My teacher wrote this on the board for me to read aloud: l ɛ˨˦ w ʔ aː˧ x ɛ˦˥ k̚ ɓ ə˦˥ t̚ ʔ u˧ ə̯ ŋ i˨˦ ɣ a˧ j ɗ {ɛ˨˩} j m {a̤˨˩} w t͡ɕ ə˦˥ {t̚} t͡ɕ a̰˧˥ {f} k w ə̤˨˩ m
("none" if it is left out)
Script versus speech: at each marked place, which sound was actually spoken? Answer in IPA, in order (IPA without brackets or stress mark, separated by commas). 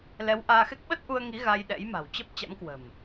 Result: ɛ̰˧˥, a̤˨˩, p̚, m